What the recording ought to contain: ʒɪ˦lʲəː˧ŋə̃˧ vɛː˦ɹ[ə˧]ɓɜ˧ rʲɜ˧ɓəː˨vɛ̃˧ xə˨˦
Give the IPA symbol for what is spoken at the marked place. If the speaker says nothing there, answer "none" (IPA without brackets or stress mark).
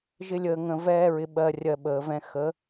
ɪ˧